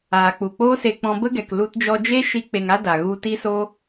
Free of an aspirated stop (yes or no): yes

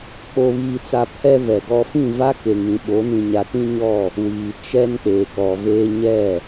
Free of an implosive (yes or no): no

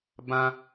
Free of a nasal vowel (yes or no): no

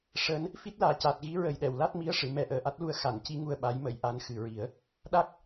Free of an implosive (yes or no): no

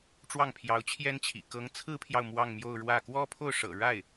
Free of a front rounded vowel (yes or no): yes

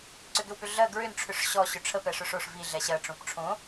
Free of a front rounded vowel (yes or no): no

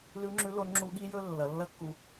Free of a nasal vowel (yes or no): yes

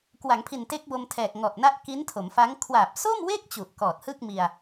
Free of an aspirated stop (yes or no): no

